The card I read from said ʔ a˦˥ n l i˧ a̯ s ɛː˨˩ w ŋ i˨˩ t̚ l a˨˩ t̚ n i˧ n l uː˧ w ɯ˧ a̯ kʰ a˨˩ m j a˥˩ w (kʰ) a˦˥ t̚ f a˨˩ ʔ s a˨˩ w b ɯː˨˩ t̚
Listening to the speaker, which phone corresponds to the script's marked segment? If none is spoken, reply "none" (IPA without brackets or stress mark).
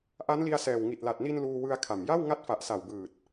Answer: ŋ